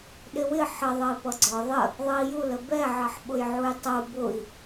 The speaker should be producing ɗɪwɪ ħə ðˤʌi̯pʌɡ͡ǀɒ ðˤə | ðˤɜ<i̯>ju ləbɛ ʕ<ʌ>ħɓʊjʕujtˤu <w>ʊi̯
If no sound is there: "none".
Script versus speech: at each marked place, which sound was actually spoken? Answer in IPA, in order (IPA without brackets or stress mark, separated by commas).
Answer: i̯, ʌ, b